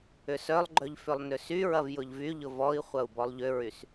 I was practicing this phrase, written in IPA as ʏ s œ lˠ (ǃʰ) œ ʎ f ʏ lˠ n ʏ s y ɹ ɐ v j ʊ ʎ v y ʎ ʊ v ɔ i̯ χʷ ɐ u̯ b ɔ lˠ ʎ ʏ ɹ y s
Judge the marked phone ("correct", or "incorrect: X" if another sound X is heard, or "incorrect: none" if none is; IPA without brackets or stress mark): incorrect: ɡ͡ǃ